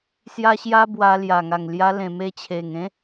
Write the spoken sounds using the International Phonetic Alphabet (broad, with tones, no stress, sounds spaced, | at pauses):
s j a˦ ɕ j a˦ b w a˧ l j a˨˩ ŋ a˨˩ ŋ l j a˧ l ẽ˨˩ m e˧ t͡ɕʰ e˨˩ ŋ ẽ˦